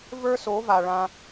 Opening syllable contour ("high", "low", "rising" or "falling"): high